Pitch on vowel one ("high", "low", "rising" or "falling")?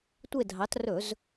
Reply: falling